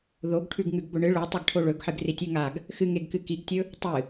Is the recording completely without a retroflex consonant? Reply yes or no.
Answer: no